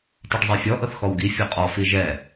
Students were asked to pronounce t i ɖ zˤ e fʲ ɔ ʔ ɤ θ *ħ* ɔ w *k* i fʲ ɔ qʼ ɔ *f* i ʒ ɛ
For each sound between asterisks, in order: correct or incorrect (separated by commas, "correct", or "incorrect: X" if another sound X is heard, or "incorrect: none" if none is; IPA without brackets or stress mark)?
incorrect: x, incorrect: ɡ, correct